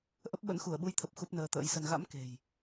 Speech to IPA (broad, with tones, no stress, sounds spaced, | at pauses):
ʔ ə˦˥ p̚ ɓ ə̰˧˥ n x u˧˩ ə̯ ɓ u˧ j t̪ʰ ə˨˩ p̚ x u˦˥ p̚ n əː˧ t̪ ə̰ː˧˥ j s ə˧ n ɣ a̰˧˥ m k e̤˨˩ j